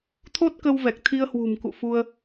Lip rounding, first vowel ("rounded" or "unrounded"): rounded